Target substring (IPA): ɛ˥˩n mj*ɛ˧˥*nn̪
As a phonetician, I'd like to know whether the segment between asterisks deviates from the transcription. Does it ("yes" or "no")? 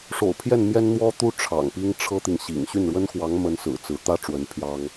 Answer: yes